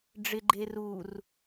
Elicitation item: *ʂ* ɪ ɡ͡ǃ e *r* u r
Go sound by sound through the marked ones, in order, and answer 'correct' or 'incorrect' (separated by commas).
incorrect, correct